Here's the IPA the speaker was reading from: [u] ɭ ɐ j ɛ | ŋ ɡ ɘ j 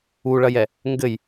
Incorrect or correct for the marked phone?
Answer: correct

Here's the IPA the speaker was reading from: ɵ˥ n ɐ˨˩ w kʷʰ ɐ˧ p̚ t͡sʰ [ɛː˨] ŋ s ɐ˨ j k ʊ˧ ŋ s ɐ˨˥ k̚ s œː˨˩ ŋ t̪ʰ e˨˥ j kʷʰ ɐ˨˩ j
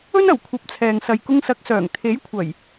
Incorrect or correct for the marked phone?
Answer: correct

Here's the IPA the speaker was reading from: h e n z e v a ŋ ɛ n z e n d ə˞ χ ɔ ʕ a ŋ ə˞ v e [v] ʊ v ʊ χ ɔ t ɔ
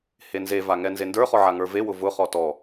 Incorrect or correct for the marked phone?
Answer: incorrect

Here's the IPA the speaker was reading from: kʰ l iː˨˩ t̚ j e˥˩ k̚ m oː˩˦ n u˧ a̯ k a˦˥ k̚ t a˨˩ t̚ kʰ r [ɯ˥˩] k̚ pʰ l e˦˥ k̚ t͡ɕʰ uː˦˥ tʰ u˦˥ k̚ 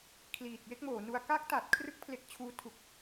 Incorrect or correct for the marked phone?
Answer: correct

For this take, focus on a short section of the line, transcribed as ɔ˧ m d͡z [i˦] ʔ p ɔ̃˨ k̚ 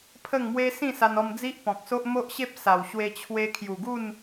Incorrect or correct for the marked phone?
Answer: correct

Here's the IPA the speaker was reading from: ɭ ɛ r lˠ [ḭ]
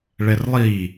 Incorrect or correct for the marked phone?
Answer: incorrect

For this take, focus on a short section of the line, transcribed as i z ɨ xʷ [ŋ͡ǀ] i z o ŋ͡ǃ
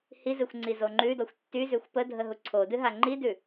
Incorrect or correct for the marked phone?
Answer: correct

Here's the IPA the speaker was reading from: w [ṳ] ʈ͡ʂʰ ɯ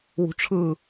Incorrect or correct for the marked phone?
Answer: correct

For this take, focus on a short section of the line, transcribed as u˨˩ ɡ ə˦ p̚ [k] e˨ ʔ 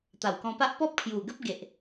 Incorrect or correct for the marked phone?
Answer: incorrect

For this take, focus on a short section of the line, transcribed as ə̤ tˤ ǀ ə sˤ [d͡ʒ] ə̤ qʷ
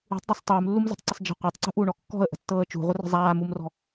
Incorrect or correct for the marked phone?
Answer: correct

